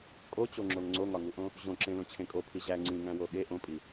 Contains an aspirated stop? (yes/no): yes